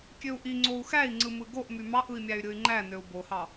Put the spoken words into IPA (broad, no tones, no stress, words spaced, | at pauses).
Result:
kʲøu̯ʔi ŋ͡ǀou̯xæi̯ ŋ͡ǀɯmɯɡoʔ mymɑʔɯi̯mʲæy̯ ɾʲɯy̯ŋ͡ǃæ nøu̯bohɑ